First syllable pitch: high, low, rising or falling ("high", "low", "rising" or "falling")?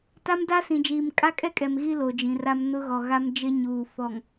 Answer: high